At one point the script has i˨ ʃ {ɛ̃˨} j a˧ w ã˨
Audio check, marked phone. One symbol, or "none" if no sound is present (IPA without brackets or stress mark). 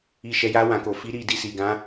ɛ˨